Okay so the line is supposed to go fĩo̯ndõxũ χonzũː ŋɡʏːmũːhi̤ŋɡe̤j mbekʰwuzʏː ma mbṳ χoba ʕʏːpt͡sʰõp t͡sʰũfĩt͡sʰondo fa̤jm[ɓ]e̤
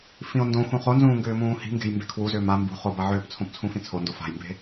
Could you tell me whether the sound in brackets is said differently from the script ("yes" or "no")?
yes